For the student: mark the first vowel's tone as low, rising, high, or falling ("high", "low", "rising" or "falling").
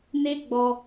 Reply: high